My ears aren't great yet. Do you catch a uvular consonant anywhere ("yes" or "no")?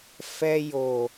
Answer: no